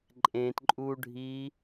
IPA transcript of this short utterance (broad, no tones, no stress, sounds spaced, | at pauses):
ǃʼ ẽ t ǃʼ u ɖʱ i